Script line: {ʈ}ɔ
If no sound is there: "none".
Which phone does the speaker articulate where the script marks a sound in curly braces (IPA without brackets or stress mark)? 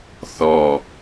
θ